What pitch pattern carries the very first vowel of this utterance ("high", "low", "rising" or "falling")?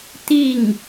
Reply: falling